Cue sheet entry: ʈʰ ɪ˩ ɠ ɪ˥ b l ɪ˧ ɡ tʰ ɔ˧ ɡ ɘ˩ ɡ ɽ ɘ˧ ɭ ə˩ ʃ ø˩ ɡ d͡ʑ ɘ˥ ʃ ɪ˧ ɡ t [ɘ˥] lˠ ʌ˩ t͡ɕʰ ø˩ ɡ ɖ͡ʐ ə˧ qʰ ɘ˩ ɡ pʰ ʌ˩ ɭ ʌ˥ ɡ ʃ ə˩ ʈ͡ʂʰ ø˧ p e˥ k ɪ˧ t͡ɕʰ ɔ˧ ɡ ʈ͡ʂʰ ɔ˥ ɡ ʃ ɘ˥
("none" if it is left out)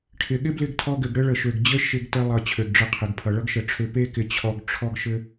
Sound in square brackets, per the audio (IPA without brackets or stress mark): ɘ˧